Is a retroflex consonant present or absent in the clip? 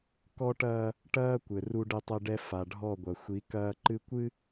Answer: present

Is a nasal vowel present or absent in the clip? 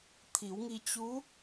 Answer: absent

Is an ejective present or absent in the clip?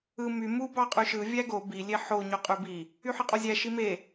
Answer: present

